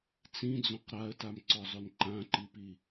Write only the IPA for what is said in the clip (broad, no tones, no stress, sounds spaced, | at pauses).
t͡s ĩ d͡z õ q ɾ a ə̯ t a m ǀ ɔ zˤ ɵ n ǃ ã ǃ i p i